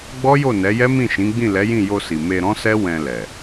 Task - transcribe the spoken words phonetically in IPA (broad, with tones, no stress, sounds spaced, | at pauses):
ɡ͡b ɔ˦ j o˦˨ n ɛ˨˦ j ɛ˦ m ĩ˦˨ ʃ ĩ˨˦ ɡ͡b ĩ˦˨ l ɛ˨˦ j ĩ˦˨ j o˧ s i˨ m e˧ ɾ ɔ̃˦ s ɛ˦ w ɛ̃˧ l ɛ˨